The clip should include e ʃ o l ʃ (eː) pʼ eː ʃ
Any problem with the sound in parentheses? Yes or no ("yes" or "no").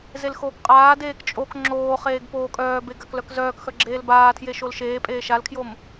no